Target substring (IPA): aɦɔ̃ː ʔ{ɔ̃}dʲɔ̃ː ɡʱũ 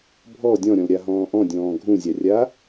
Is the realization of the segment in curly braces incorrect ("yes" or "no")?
no